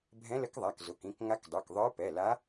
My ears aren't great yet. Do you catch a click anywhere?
no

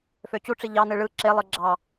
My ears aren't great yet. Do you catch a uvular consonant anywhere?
no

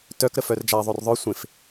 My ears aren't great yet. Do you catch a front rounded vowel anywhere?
yes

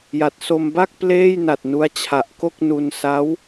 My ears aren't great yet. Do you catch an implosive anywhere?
no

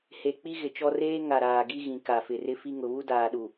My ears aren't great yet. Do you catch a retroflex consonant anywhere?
no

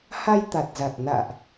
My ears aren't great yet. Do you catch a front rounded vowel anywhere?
no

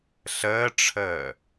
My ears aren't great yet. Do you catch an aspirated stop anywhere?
yes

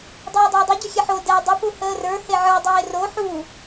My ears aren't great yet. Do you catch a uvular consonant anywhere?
no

